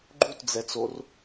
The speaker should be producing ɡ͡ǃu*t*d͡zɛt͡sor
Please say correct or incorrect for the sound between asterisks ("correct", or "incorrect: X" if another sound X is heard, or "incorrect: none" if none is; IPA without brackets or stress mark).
correct